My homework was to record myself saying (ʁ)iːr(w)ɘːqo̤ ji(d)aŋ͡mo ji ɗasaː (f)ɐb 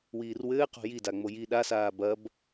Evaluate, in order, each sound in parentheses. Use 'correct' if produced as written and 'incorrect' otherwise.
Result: incorrect, correct, correct, incorrect

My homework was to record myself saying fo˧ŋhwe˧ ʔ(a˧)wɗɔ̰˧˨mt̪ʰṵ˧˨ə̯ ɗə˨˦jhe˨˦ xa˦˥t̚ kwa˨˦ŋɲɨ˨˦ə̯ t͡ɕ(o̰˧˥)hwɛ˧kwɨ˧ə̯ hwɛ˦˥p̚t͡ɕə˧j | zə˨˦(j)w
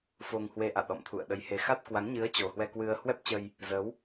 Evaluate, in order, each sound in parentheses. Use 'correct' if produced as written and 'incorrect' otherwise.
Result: incorrect, incorrect, incorrect

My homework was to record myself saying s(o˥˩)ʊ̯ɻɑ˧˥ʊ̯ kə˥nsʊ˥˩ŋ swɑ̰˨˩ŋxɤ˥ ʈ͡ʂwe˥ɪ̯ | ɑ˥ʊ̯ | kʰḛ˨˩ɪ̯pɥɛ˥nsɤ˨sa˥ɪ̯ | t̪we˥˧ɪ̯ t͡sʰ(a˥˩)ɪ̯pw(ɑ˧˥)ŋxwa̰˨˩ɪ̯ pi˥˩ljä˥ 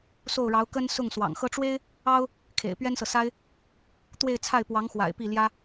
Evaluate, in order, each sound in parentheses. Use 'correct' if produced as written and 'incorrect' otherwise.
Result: correct, correct, correct

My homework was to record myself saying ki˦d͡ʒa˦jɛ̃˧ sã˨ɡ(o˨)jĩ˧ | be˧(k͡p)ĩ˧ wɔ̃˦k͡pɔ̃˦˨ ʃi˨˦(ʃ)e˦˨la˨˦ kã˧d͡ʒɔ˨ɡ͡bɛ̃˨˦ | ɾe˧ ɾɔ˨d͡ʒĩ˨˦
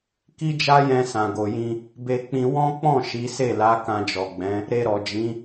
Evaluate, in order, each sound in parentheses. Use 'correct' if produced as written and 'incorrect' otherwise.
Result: correct, correct, incorrect

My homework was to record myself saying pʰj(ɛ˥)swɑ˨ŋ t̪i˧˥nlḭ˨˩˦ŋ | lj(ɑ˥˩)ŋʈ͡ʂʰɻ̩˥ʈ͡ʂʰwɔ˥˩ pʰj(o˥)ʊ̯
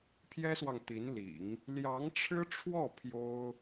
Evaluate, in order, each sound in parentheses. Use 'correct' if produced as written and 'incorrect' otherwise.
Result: correct, incorrect, correct

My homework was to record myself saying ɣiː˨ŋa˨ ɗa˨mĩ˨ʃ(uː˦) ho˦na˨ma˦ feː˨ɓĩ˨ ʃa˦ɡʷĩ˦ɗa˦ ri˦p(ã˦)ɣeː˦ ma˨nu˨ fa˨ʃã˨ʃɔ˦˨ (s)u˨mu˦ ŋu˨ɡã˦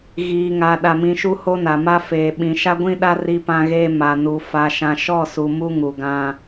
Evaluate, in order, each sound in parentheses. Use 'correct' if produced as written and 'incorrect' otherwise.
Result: incorrect, correct, correct

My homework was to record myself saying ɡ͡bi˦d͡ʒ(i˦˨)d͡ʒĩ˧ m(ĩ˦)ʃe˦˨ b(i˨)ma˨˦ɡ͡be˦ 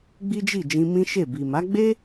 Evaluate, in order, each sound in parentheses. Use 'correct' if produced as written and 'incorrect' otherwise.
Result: correct, correct, correct

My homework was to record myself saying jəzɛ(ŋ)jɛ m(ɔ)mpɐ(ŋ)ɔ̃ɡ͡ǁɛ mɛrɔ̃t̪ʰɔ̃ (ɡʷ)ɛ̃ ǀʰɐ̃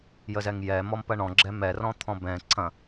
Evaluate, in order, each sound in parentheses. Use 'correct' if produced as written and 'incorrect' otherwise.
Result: correct, correct, incorrect, incorrect

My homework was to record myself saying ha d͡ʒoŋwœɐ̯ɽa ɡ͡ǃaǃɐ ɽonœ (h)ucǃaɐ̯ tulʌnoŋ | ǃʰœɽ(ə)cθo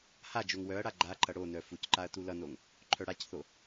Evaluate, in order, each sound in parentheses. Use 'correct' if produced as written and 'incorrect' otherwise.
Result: incorrect, incorrect

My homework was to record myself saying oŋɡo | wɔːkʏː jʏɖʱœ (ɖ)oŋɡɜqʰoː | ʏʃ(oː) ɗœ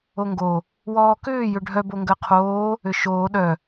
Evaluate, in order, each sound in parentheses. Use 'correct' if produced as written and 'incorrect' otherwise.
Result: incorrect, correct

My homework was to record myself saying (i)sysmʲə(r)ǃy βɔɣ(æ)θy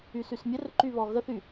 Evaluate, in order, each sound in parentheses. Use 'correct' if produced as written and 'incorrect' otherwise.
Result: incorrect, correct, incorrect

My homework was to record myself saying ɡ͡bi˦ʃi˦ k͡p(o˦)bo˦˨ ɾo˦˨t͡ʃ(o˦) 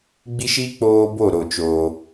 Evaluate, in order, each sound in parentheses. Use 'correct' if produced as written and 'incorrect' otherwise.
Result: incorrect, incorrect

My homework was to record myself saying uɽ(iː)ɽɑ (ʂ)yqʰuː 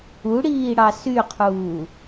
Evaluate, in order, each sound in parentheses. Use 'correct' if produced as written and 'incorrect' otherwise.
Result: correct, incorrect

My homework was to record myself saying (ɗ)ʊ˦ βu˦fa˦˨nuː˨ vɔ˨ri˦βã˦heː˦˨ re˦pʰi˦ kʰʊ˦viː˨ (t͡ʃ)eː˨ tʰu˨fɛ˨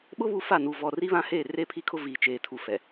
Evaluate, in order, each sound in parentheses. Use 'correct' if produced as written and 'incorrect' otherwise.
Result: incorrect, correct

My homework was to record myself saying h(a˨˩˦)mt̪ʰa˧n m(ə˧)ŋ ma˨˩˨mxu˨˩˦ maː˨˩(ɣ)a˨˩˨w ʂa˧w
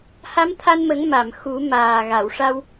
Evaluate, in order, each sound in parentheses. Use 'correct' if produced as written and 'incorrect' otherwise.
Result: incorrect, incorrect, correct

